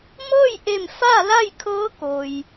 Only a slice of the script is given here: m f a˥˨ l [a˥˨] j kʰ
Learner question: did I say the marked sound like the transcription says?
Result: yes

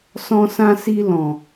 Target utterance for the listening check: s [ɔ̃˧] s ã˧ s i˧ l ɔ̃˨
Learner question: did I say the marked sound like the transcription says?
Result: yes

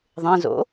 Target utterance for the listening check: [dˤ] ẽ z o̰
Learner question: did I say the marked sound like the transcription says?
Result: no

